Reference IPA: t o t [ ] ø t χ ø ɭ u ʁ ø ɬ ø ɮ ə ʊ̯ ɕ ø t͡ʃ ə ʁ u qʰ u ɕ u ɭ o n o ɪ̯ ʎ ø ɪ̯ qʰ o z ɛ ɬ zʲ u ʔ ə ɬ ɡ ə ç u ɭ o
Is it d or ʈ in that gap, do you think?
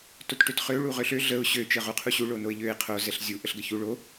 ʈ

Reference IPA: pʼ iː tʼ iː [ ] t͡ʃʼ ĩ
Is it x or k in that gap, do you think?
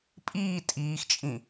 x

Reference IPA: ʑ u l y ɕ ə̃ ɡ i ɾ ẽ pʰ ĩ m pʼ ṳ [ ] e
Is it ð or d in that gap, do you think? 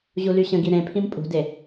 d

